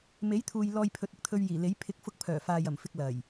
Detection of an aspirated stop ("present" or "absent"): present